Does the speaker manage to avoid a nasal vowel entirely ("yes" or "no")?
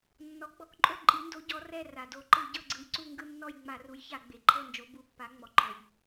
yes